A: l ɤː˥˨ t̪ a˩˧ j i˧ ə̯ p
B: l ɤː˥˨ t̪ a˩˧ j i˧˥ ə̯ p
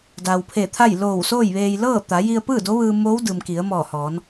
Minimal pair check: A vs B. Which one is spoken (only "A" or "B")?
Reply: A